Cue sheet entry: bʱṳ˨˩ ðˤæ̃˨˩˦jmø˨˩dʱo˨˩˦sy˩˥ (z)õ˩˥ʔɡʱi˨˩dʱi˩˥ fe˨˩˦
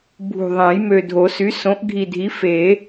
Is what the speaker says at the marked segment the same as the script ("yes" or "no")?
no